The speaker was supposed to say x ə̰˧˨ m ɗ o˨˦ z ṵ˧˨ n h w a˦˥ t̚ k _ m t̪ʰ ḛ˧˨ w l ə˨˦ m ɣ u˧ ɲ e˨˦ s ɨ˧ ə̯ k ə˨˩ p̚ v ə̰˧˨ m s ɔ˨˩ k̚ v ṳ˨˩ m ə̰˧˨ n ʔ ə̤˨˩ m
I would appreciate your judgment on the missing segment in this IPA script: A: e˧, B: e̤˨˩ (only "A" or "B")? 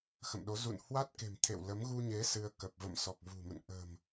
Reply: B